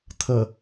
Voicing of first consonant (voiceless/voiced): voiceless